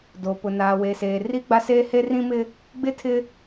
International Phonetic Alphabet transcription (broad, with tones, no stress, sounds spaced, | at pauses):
d o˨ p ʊ˨ n aː˨ w e˨ s eː˨ r i˦ ɡ͡b a˦ s eː˦ h e˦ r ĩ˦ m ɪ˦ | ɡ͡b ɪ˦˨ tʰ ɪ˦